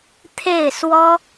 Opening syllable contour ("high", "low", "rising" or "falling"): falling